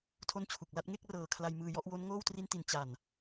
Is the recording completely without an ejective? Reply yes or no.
yes